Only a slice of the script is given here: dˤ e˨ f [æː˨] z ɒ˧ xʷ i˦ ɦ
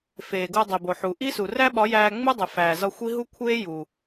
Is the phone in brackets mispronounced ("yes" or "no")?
no